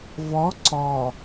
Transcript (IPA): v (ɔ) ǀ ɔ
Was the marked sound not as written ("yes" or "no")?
no